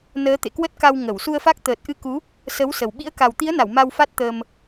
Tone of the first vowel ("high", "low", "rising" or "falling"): rising